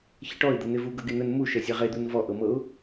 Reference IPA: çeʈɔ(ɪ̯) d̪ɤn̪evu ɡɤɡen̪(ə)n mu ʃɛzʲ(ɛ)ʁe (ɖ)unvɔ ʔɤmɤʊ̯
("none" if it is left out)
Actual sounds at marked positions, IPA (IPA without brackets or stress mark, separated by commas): ɪ̯, ə, ɛ, d̪